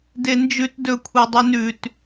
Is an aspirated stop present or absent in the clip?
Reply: present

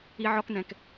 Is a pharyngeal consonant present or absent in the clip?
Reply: present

